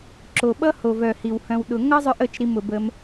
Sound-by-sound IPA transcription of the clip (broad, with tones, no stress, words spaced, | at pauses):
ǁo˨ɓʌ˦ho˨v œ˨hi˨w hœ̃˧wɗʊ˧ ŋʌ˦zˤœ˧ʔə˦˨t͡ʃ ɾi˧m ʊ˨bə˧m